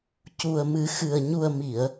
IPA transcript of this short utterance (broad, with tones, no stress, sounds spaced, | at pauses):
c u˨˩ ə̯ m ɨ˨˩˦ x ɨ˨˩ ə̯ ɲ u˨˩ ə̯ m i˨˩˨ ə̯